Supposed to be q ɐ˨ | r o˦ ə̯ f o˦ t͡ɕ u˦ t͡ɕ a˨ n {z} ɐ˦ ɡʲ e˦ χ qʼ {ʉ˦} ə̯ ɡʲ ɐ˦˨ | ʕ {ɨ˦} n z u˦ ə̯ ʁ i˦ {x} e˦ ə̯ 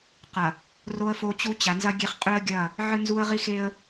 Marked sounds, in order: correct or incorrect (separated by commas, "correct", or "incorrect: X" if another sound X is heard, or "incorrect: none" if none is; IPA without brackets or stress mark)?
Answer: correct, correct, correct, correct